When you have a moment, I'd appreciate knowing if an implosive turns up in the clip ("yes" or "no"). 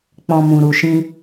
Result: no